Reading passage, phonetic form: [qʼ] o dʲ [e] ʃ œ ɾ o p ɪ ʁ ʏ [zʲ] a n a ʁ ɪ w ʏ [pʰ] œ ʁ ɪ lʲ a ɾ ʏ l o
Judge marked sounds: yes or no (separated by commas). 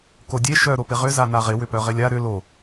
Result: no, yes, no, no